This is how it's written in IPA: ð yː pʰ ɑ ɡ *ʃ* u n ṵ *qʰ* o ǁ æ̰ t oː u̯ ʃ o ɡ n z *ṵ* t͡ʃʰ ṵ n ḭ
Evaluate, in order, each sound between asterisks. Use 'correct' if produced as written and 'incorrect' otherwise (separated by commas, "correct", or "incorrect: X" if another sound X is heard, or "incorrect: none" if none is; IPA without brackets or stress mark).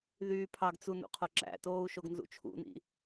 incorrect: t͡s, correct, correct